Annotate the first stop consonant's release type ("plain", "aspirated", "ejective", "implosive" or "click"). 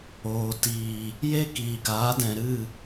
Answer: plain